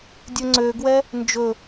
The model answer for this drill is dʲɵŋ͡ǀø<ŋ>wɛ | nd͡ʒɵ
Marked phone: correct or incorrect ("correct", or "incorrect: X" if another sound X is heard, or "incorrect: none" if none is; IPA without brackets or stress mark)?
incorrect: ɡ